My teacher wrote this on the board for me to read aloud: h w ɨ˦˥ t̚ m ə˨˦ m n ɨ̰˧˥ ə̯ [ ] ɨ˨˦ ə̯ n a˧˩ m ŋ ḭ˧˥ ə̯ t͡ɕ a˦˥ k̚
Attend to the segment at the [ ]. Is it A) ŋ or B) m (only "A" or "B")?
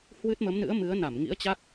B